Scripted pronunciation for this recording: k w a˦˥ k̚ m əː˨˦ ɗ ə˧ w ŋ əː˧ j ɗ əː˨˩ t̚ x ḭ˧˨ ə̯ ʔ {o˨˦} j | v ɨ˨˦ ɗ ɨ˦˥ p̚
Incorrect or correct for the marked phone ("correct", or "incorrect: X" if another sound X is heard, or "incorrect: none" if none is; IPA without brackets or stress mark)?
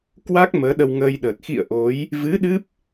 correct